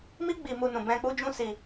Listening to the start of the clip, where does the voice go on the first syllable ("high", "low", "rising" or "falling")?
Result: high